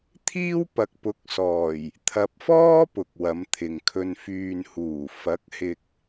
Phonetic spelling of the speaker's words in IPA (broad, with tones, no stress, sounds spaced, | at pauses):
t̪ʰ iː˥ w p ɐ˨ k̚ p ʊ˨˥ k̚ s ɔː˨˩ j | t̪ʰ ɐ˨ p̚ f ɔː˥ p ʊ˨ k̚ w ɐ˨˧ m t̪ʰ ɪ˨ ŋ kʰ ɵ˨ n f yː˨ n h uː˨˩ f ɐ˨˥ k̚ h ɪ˨ k̚